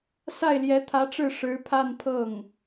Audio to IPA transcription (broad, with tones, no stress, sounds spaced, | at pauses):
s a˥˩ ɪ̯ l j ɛ˧˥ t̪ʰ ä˧˥ ʈ͡ʂ ɻ̩˥˩ ʂ ɻ̩˧˥ pʰ a˥˧ n pʰ ɤ˥˩ ŋ